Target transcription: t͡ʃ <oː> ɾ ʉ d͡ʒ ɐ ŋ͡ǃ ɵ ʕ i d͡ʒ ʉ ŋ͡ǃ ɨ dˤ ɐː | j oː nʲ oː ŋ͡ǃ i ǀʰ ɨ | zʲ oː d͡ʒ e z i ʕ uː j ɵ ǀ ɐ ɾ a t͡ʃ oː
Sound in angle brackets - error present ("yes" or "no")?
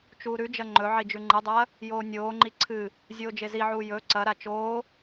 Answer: yes